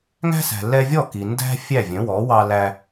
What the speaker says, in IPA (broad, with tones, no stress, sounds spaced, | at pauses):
ŋ æ̤˥ s æ̤˩ l ɛ˧ vʲ ɔ˥˩ k i˩ n d æ̤˥ fʲ æ˥˩ vʲ œ̃˩˥ w ɔ˩˥ w ɑ˧ l æ˧